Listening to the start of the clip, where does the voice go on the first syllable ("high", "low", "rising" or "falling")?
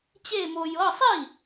falling